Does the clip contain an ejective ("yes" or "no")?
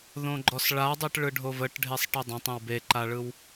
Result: no